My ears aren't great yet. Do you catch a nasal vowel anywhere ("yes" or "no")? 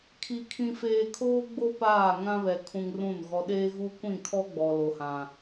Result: yes